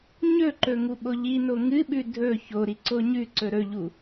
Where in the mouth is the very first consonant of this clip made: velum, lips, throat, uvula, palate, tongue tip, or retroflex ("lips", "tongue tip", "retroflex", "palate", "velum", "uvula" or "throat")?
palate